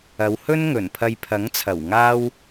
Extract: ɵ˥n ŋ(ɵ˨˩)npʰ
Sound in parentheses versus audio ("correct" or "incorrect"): correct